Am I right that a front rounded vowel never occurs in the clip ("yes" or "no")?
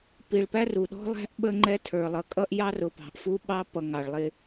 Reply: yes